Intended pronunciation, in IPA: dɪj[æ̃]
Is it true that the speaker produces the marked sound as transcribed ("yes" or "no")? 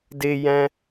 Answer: yes